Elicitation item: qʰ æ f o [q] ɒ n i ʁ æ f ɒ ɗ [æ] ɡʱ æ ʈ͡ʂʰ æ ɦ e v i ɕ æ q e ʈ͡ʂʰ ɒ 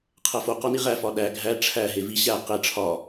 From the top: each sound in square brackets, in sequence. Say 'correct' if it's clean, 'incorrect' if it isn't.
correct, correct

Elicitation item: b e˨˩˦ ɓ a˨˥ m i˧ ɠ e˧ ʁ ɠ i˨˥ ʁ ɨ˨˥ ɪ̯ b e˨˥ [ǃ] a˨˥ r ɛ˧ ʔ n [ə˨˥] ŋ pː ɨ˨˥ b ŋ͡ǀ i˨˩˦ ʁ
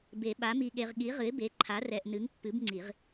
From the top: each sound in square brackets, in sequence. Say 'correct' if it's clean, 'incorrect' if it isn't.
incorrect, incorrect

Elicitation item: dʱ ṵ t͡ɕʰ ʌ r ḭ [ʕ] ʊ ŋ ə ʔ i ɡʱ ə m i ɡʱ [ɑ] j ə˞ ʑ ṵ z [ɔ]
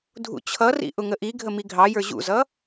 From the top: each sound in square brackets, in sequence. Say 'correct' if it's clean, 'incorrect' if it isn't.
incorrect, correct, incorrect

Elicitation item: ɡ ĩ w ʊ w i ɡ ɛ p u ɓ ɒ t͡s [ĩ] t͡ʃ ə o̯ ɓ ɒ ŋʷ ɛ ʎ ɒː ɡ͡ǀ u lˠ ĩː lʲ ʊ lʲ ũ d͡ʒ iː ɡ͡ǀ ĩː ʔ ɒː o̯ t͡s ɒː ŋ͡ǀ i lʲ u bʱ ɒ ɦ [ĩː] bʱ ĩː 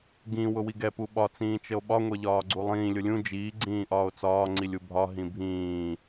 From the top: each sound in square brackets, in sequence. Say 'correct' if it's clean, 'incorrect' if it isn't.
incorrect, incorrect

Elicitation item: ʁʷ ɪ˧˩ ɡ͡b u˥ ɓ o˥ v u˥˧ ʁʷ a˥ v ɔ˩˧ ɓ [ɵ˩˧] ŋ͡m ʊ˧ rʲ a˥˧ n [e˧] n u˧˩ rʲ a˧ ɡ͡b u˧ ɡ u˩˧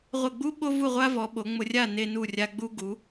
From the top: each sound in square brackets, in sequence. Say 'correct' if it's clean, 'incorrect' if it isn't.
incorrect, correct

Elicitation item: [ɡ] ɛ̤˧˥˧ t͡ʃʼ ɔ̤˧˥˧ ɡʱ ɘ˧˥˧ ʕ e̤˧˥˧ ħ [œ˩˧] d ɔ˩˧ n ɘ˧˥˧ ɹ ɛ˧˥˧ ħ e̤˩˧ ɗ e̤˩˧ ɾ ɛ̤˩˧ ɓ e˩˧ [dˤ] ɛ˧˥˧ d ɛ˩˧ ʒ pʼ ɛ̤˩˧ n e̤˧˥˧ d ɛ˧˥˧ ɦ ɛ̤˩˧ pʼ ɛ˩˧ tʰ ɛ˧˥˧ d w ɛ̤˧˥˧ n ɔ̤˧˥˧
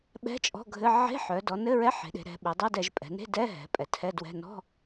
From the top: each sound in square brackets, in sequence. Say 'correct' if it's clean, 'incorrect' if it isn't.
incorrect, correct, correct

